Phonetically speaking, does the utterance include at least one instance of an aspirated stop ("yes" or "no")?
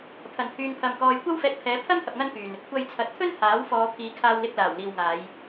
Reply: yes